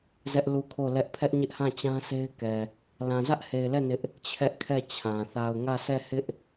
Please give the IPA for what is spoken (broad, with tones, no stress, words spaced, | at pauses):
zɛ˦ʔ lu˦˨kʰo˦˨lɛ˦ʔ pʰɛ˦ʔɲɪ˦ʔhã˦˨t͡ɕã˦ se˦ɪ̯kɛ˨ | lã˨zä˦ʔhe˨ɪ̯lɛ˦˨ nɪ˦ʔ | t͡ɕʰɛ˦ʔkʰɛ˦˨t͡ɕʰã˨ θa˨ʊ̯ŋä˦˨sʰɛ˦˨hɪ˦ʔ